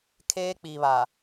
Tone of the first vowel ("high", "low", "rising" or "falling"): high